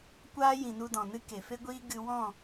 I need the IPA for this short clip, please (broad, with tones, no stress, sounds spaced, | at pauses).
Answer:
kʷ aː˦ j ĩ˨ n u˧ d ɔ̃˨ n ɨ˦ k e˨ f e˦ ɡʷ iː˦ ɡ ɨ˧ w ɔ̃˦˨